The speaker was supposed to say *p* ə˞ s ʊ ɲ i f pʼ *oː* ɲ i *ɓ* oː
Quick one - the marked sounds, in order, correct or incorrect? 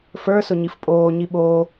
incorrect: f, correct, correct

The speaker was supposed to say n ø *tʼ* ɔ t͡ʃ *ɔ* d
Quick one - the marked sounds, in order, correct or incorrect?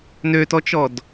incorrect: t, correct

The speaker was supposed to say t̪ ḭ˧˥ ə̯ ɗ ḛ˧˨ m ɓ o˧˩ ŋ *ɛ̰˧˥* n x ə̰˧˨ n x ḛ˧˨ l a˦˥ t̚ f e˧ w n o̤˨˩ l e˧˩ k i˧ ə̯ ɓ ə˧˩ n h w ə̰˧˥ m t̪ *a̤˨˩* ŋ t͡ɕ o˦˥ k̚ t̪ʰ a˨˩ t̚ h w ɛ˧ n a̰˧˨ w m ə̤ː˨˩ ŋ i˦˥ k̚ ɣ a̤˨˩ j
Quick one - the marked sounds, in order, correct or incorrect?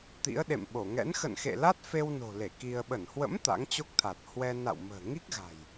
correct, incorrect: a̰˧˥

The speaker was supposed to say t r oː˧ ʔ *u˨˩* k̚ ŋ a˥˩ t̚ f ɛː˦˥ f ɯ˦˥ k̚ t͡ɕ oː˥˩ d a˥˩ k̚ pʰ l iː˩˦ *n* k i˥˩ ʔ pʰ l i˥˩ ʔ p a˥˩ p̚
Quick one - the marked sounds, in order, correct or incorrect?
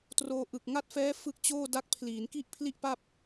incorrect: ɯ˨˩, correct

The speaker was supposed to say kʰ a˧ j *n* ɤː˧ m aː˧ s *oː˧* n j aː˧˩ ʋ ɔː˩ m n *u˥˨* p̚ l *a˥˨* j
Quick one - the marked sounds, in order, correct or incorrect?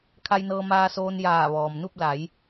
correct, correct, correct, incorrect: a˩˧

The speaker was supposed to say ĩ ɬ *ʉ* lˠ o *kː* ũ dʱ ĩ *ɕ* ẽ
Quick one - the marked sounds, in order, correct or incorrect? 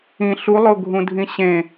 incorrect: u, incorrect: ɡʱ, correct

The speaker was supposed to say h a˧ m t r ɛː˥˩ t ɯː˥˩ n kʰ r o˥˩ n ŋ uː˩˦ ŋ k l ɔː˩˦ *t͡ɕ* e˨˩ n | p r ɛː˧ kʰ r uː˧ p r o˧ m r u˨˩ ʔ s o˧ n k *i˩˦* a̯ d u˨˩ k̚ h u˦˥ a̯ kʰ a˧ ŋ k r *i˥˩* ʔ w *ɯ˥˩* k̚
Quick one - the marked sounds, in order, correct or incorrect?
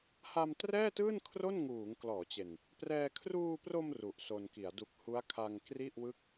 correct, correct, correct, correct

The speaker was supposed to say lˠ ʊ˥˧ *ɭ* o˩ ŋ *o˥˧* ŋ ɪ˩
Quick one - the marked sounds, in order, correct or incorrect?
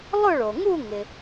correct, incorrect: u˥˧

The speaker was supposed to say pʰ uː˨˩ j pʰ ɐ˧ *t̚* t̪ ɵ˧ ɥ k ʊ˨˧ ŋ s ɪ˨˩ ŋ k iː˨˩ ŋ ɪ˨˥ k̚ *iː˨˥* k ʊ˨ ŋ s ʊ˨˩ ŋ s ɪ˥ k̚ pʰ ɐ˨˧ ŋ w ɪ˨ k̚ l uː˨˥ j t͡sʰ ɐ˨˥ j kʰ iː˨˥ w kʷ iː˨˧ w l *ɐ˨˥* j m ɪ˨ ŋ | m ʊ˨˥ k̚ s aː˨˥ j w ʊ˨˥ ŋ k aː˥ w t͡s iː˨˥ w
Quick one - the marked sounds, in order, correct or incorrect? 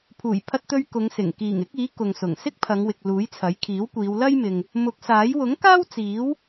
correct, correct, incorrect: ɐ˥

